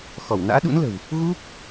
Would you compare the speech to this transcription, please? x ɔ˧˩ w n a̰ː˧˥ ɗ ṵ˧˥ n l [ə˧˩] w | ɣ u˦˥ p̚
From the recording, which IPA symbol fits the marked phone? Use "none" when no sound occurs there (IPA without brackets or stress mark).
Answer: ə̤˨˩